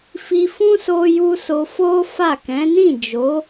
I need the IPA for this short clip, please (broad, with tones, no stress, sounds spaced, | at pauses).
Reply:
f i˧ f ũ˦ s o˧ j u˧ s o˧ f o˦ f a˦˨ k ɛ̃˨˦ n ĩ˦˨ d͡ʒ o˨˦